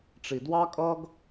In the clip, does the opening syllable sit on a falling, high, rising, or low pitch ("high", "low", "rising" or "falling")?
low